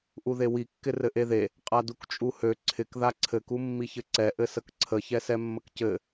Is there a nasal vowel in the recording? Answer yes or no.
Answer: no